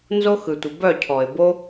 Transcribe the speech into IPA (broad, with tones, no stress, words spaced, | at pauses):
nzo˦xɯ˨tʷə˨ bœ˦˨cʰɔ˨ɪ̯bo˦